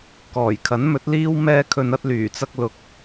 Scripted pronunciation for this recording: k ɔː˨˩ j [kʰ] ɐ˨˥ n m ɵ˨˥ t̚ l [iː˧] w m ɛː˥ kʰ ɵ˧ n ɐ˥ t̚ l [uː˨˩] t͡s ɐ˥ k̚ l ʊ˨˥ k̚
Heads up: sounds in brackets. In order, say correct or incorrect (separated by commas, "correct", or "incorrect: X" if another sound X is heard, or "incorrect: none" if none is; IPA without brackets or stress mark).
correct, incorrect: iː˥, incorrect: yː˨˩